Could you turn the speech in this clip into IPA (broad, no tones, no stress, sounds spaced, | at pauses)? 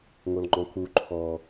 ŋ o l ŋ͡ǃ ɔ̃ k u ǃʰ ɔ